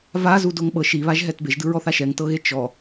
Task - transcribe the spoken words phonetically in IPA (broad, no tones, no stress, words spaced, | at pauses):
vazudoŋ ɓɤʃ iβaʒɦɛt beʒdɯɹɔθa ʃɛŋtɤɣe t͡ʃɔ